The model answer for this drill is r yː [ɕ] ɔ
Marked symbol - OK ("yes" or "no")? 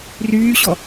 yes